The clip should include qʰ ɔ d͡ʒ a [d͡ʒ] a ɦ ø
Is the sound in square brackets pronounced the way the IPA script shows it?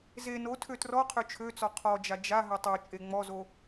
yes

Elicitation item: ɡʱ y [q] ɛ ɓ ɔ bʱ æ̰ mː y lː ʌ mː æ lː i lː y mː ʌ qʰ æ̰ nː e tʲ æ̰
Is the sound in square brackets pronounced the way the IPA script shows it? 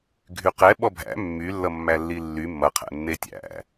yes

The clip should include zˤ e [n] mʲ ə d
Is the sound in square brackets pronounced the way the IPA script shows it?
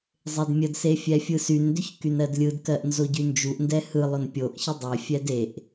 no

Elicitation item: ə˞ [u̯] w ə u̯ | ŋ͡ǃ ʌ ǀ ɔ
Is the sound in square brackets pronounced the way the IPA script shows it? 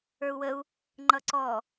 yes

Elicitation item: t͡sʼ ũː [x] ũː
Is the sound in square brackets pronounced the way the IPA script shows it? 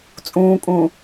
no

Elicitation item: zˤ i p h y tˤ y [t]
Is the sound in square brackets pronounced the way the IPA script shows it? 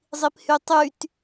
yes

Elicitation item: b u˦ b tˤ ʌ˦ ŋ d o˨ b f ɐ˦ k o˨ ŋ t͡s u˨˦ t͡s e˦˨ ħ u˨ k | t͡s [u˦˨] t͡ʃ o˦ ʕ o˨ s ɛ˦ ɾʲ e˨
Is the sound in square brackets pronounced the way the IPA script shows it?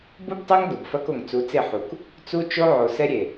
no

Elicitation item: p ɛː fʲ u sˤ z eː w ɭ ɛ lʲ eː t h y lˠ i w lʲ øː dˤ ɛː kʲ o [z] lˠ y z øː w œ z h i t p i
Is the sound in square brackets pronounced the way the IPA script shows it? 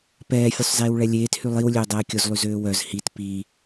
yes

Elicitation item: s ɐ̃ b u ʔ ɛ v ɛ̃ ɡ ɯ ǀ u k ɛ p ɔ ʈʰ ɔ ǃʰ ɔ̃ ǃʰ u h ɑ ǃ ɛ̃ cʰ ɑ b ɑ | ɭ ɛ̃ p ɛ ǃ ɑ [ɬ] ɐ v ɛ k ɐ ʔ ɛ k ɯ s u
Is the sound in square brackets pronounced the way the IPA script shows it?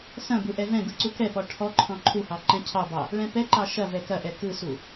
no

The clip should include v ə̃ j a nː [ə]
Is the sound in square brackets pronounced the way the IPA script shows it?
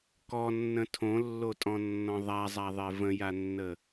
yes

